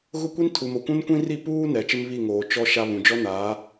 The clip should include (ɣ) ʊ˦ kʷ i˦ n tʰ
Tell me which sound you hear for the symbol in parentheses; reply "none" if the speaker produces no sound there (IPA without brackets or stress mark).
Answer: ɣ